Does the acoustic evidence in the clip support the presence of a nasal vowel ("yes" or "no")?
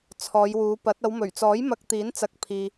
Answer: no